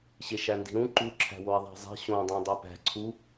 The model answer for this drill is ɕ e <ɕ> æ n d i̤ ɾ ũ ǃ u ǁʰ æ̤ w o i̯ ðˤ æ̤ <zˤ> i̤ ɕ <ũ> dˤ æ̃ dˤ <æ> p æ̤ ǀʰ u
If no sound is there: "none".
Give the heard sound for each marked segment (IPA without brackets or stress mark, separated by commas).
ʃ, zˤ, õ, æ